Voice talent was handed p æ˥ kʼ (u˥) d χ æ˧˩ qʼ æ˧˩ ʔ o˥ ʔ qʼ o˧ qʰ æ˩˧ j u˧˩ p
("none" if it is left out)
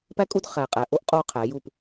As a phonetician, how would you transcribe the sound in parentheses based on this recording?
u˥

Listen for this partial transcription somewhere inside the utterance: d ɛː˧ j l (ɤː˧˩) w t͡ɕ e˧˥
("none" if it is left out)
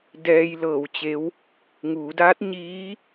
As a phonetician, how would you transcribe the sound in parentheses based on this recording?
ɤː˧˩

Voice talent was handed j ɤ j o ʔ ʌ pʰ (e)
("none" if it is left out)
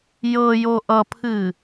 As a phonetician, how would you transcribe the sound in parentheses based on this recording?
ɨ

